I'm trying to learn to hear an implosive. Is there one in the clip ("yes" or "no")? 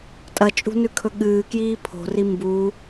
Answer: yes